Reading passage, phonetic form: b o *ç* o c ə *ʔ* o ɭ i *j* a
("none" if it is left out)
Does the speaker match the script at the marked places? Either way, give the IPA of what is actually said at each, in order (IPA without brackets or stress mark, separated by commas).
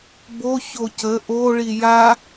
ç, ʔ, j